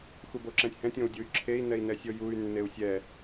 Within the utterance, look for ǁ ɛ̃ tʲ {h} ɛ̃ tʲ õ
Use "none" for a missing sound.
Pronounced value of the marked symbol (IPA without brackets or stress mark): h